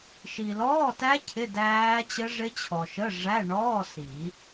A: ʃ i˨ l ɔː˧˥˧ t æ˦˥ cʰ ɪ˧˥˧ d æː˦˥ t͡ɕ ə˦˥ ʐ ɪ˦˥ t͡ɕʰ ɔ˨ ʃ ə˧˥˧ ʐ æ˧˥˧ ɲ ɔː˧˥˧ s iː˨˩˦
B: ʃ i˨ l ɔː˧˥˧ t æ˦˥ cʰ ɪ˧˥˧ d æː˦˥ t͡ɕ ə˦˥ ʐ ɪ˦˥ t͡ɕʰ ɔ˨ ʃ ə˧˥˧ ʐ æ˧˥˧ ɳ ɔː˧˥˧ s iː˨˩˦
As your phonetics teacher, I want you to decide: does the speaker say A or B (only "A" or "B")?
B